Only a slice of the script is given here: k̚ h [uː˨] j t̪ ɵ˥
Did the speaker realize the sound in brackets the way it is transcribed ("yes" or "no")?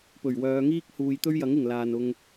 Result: yes